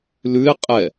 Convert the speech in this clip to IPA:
l ʉ ɪ̯ qʼ ɛ

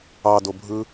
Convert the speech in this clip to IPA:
ɑ d o bʱ ɯ

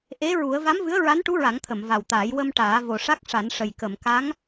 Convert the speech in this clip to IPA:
ʔ e˧˥ ɹ u˨˩˦ ə̯ v a˧˥ m v ɨ˧˥ ə̯ ɹ a˧˥ n ʈ u˧˥ ɹ a˨˩˦ ŋ t̪ʰ ə˨˩˨ m v a˨˩ w t̪ aː˨˩˦ j w ə˧ m ʈ aː˨˩˦ v o˨˩ ʂ a˦˥ k̚ ʂ a˨˩˦ n ʂ ə˨˩ j k ə˨˩˨ m k a˧˥ ŋ

